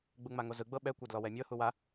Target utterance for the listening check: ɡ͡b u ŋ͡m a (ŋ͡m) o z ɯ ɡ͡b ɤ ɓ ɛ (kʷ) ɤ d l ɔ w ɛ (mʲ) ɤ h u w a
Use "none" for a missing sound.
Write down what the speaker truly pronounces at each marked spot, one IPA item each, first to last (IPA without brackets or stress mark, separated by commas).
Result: ŋ, kʷ, mʲ